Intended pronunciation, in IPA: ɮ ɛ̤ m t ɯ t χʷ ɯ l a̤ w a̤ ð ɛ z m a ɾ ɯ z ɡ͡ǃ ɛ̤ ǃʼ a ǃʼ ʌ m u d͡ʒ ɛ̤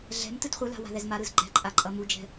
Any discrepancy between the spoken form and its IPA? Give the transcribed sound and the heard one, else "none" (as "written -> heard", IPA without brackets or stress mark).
none